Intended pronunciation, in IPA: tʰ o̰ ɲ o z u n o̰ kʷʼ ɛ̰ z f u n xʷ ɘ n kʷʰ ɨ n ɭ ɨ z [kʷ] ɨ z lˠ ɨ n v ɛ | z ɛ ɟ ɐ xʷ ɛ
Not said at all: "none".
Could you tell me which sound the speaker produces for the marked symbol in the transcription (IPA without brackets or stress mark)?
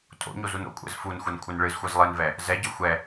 xʷ